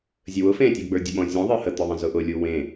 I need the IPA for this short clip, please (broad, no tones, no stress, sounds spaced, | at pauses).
zʲ ə w ʊ f ẽ tʲ ʊ ɡ͡b ə˞ dʲ ʊ ɓ ɔ̃ zʲ ɔ̃ ðˤ ə˞ h ə t̪ ʊ ðˤ ẽ z ʊ ʔ ʊ lʲ u w ẽ